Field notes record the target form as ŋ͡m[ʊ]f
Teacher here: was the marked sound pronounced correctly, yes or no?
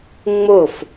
yes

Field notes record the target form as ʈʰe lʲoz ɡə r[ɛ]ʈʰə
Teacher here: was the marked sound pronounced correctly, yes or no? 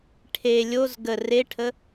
no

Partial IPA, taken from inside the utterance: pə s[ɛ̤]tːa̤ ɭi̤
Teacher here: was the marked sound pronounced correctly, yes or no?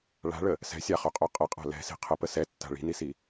no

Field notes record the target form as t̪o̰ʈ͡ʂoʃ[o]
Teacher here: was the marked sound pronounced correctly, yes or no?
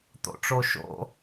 no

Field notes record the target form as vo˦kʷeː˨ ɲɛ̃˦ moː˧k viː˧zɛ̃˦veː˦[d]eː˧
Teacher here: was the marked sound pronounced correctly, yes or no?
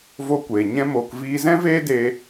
yes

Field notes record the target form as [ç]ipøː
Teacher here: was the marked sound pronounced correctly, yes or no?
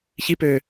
yes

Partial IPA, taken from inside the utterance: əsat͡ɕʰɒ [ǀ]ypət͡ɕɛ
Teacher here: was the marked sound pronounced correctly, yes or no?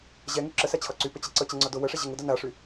yes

